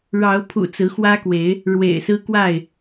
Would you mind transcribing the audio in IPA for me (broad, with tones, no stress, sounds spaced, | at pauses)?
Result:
ɻ ɑ˨˦ ʊ̯ pʰ ṵ˨˩ t͡s ɹ̩˨˦ x w ä˦ k w e˨˦ ɪ̯ | ɻ w ḛ˨˩ ɪ̯ s ɹ̩˦ k w a˥˨ ɪ̯